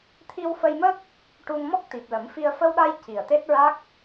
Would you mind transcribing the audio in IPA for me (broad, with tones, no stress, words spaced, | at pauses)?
t̪ʰi˧wfə˧jmə˦˥k̚ | ʈu˧ŋmɔ˦˥k̚ t̪i˨˩p̚lə˨˩˦mfi˧ə̯ fə˧wɗa˧j ci˨˩ə̯t̪e˦˥t̚ɹa˦˥k̚